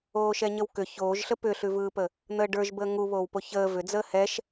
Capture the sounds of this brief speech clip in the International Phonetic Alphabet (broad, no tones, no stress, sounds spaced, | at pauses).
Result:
oː ʃ ɛ ɲ ə w k ʏ ç oː ʒ ɬ ə p ʏ ɬ ʉ v ɯː p ə | n̪ əː ɖ ə˞ ʒ b əː ŋ u β oː w p o ç əː v ʏ d͡z əː h ɛ ʃ